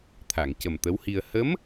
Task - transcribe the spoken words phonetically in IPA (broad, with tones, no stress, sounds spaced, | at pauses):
t̪ʰ a˨˩˨ ŋ c ə˨˩ m t̪ ə˧˥ w h i˧ ə̯ h ə˧˥ m